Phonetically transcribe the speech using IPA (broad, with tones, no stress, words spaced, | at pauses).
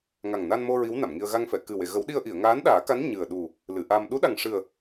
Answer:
ŋa˨˩ŋna˧nmo˧ ɹi˧˥wna˨˩˨mŋi˧ə̯ ɣa˧ŋfɛ˨˩˨kɨ˨˩we˨˩˨ ɣə˨˩˦wɗi˧ə̯ ʔi˨˩˨ə̯ŋaː˧˥n ɗaː˨˩˦ka˧˥n ɲɨ˨˩ə̯ ɗu˨˩ | lɨ˨˩˨ʔa˧m ɗu˧˥ɗa˨˩ŋʂɨ˨˩ə̯